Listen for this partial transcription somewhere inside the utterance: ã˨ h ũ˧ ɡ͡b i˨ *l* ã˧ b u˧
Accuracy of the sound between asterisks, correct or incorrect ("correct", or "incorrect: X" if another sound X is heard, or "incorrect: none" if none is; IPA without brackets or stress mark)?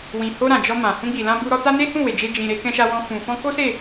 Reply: correct